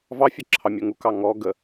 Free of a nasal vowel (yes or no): yes